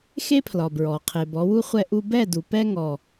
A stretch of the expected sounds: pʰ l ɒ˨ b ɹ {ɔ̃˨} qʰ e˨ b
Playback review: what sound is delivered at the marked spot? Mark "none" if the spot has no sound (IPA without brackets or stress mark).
ɔ˨